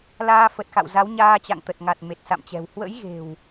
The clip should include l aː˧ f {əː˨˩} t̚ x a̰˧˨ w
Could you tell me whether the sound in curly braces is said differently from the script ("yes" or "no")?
yes